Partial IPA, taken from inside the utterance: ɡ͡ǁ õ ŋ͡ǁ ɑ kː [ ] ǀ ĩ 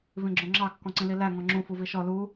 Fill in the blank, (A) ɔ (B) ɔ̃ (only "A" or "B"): B